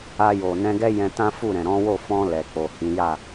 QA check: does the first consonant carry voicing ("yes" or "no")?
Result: yes